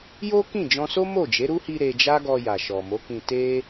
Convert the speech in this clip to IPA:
j o˦ k ĩ˦˨ d͡ʒ ɔ̃˧ s o˦ m o˦˨ d͡ʒ e˨˦ ɾ u˦ h i˧ ɾ e˧ d͡ʒ a˦ ɡ ɔ˧ j a˨ ʃ ɔ˨ m o˨˦ k ĩ˧ t e˦

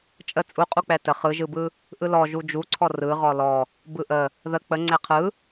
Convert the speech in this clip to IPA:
t͡ʃʼ ə t͡sʼ u qʼ u k͡p ɛ t ə χ ɯ ʒ ɯ b ɯ | ʔ ɯ l ɔ ʒ u d͡ʒ u ǀʰ ɔ r ɯ ʁ ɔ l ɔ | b ɯ ʔ ə | ð ə k͡p ə ŋ͡ǀ ɛ qʰ ɯ

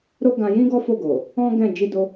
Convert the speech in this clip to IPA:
ɾ o˦ ɡ ã˧ j ĩ˦ ɡ ɔ˦ f o˦˨ ɡ o˨ | ɔ̃˦ ɡ ɛ̃˦˨ d͡ʒ i˧ d o˧

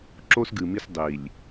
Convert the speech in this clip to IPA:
ǁ o˦ s ɡ ɨ˨ m i˦ s dˤ i˨ lʲ

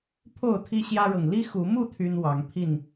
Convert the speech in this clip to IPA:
pʰ o˥˨ ʊ̯ t̪ʰ i˦ ɕ j ä˦ ɻ ɤ˨ ŋ l i˦ x u˨˦ m u˥˨ t̪ʰ y˦ n w ɑ˨˦ ŋ pʰ i˥˨ n

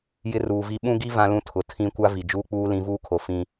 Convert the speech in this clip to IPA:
j ɪ˦ r uː˨ v i˦ ɓ ũ˦ ɡ i˦ v ã˦ l ũ˦ tʰ ʊ˨ tʰ ĩ˦ kʷ a˦ v i˨ d͡ʒ uː˦ k͡p uː˦ l ĩ˨˦ v uː˦ kʰ o˨ f ĩ˦

